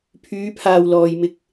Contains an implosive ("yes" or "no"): no